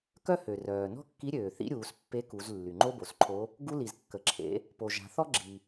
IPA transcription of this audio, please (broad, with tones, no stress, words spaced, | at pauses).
kœ˥hø˩rœː˩ nɔ̤˥kːi˧˥ɾʲøː˩θḭ˧˥ ɾʲuː˩˧s pːe˧˥ku˩˧z lːy˩ŋ͡ǃo˥bo˩sǃʰo˧˥ | ɡu˧li˩z kːə˩ǁʰḛ˩˧ | po˩ʒa̤˩˧θɔ˥ ɡ͡ǁi˩